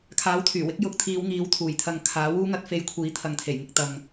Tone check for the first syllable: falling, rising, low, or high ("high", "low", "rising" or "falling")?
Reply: rising